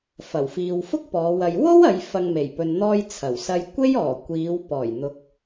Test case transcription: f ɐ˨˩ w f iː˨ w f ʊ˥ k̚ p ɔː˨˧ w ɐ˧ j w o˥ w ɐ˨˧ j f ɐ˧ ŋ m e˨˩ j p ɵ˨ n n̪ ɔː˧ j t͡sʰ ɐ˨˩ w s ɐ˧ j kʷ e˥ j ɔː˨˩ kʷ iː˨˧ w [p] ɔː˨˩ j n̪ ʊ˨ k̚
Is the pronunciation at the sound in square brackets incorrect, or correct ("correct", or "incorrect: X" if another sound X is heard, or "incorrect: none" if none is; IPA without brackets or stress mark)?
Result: correct